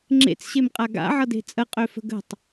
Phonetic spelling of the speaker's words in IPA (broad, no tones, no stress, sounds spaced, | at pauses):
ŋ͡ǁ ḛ t͡s ɕ e m qʼ a ɡ a̰ ʕ ʌ d e̤ t͡sʼ ə qʼ ø f ə̤ ɡ ə̤ tˤ